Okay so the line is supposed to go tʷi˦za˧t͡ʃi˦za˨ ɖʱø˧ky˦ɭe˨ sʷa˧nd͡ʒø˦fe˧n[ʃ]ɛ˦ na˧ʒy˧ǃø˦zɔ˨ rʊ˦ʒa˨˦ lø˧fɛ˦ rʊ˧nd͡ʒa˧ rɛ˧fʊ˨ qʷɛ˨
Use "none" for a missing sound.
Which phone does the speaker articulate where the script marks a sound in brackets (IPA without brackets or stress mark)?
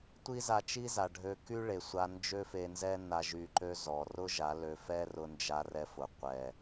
z